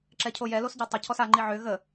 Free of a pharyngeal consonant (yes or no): no